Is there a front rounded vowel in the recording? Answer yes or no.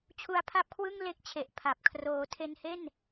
no